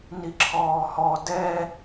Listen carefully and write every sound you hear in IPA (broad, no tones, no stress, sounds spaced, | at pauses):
n i ǁʰ ɔː h ɔ d ɛ